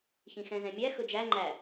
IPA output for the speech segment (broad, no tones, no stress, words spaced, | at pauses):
çĩxɛ̃zɛ̃mʲæ xɵd͡ʒæ ŋ͡ǃæ